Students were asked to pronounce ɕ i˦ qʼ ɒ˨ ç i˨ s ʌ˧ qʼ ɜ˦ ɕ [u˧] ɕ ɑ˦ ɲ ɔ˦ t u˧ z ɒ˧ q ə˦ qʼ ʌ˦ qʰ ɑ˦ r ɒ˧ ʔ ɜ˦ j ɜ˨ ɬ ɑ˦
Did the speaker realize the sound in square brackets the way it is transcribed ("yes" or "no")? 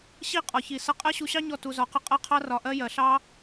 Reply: yes